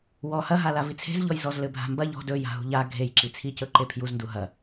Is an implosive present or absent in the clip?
absent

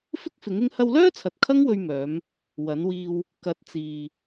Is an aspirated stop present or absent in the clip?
present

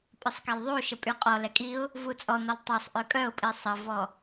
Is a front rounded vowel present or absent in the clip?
present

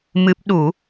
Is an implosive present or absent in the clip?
present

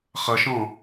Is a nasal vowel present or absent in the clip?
present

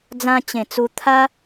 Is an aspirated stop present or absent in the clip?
present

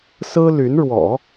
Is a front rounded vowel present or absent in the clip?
present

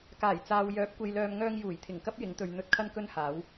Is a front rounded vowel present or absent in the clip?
present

